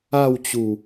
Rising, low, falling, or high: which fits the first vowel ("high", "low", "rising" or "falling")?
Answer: falling